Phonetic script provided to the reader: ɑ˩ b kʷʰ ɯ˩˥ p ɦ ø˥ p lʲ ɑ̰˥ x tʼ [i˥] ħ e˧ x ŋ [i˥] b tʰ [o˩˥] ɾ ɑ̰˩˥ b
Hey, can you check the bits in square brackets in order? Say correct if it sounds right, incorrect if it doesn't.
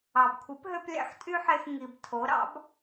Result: incorrect, incorrect, correct

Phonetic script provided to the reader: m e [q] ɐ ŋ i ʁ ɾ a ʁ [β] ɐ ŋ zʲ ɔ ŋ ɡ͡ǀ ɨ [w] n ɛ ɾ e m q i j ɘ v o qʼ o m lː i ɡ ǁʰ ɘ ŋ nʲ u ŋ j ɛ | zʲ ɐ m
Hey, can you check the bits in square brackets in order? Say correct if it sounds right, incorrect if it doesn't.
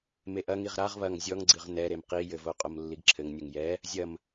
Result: incorrect, correct, incorrect

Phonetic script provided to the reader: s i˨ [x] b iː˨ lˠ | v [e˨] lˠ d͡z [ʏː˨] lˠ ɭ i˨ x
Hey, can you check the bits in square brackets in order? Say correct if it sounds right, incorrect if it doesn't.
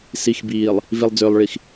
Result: correct, incorrect, correct

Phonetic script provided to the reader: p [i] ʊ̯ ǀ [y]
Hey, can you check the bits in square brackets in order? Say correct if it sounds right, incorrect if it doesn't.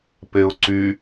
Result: incorrect, correct

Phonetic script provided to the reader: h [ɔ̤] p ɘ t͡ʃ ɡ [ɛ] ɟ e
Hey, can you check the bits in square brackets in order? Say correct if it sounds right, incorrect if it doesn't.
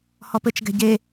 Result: incorrect, incorrect

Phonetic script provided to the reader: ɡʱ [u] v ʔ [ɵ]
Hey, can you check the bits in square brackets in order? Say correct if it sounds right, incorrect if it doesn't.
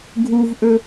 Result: correct, correct

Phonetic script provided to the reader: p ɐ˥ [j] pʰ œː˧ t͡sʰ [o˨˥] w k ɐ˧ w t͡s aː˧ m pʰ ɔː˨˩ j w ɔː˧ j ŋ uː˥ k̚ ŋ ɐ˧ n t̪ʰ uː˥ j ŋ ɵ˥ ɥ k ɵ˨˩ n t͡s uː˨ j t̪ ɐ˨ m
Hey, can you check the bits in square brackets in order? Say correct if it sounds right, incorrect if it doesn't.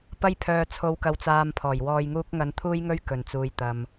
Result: correct, incorrect

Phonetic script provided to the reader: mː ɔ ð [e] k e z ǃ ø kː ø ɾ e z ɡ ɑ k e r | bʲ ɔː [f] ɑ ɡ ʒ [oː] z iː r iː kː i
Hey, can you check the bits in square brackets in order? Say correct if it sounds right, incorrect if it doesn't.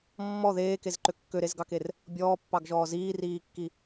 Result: incorrect, incorrect, incorrect

